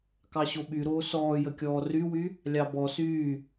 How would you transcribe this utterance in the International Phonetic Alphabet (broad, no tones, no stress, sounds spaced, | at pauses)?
k ɑ ɕ o ɓ y ɾ oː s ɔː j ə kʲ ɔː r y w y | lʲ ɑ b ɔ s yː